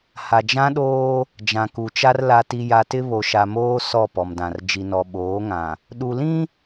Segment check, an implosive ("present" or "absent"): present